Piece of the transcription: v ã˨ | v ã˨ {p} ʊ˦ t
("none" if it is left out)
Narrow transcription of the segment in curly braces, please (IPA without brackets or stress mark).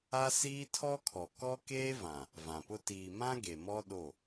p